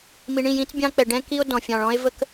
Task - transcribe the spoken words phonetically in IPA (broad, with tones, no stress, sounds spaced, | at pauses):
m i˨ ɳ ĩ˦˨ j ĩ˦ t͡s bʲ ɑ̃˦ k͡p ɛ˨ ɖ ɛ̃˦ k i˦ o̯ d ɔ̃˨ fʲ ɑ̃˨ ɭ ɔ̃˦ e̯ v ə˦ k